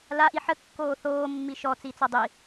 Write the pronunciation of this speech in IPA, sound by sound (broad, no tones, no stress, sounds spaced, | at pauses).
l a ʔ i ħ ə kː oː θ oː mː i ʃ ɔ t͡s i t͡s ɔ dˤ i